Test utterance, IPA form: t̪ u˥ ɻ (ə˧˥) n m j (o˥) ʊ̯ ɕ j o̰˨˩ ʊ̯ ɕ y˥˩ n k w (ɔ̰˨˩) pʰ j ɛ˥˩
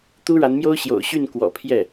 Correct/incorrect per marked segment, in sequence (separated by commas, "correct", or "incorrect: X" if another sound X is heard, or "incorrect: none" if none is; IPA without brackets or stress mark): incorrect: a˧˥, correct, correct